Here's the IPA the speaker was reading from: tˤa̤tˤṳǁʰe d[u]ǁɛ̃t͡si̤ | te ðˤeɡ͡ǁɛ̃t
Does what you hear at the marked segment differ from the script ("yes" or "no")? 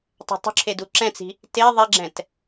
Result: no